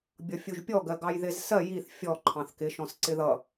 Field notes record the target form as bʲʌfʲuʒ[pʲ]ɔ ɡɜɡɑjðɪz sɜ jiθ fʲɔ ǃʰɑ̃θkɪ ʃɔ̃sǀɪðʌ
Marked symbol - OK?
yes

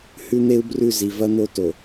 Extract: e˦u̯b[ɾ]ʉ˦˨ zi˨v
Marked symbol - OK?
no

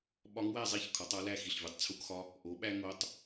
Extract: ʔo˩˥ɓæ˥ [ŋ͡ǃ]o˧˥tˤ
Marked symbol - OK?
no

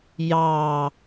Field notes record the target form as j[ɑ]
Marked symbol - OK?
yes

